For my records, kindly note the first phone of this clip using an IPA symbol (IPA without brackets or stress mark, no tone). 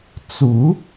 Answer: t͡s